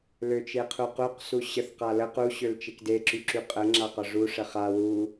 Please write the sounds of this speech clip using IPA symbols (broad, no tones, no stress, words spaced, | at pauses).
løt͡ʃeqʰuquq suɕəθ qalə qu ɕølt͡ʃekde ǁyǁyqʼə ŋ͡ǁaqɒʐu ʂəχa wu